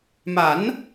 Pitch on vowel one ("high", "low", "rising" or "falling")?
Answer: rising